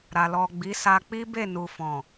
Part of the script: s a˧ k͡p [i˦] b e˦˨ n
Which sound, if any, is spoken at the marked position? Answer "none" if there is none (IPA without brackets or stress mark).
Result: i˦